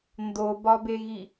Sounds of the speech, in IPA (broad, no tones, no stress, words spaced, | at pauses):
ndobɒbeɣi